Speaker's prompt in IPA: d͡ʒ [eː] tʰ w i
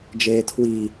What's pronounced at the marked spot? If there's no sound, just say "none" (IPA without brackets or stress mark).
eː